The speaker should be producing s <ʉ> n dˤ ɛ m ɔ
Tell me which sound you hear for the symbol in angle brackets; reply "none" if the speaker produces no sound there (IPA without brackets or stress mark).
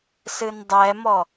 ɨ